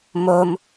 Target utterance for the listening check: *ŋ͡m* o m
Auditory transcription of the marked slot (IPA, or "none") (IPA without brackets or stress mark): m